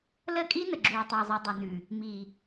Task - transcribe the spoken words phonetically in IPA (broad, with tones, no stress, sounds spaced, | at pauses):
l ə˦˨ kʼ i˦ n ə˨ ɡ͡ǁ uː˨ tˤ əː˨ zˤ o˨ dˤ ə˨ n ʉ˨ | m i˨